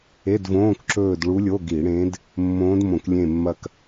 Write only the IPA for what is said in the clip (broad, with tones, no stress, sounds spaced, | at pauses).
e˧˥˧ d v õː˧˥˧ k ǁ ɵː˦˨ d ɭ u˧˥ lʲ o˧˥˧ ɡ i˧˩˧ ɽ ẽ˧˥ d | mː õː˧˥ d m õ˧˩˧ k lʲ ẽ˦˨ mː ɐ˦˨ k